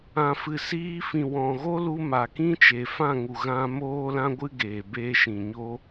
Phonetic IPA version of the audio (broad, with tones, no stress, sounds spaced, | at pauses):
ã˨ f ɨ˨ s iː˧ f ĩ˨ w ɔ̃˨ ɣ o˦ l u˧ m a˨ k ĩ˦ t͡ʃ e˨ f ã˦˨ ŋ u˨ ɣ ã˧ m oː˦ l ã˦ ɡʷ ɨ˦ ɡ eː˨ b eː˧ ʃ ĩ˨ ɲ o˦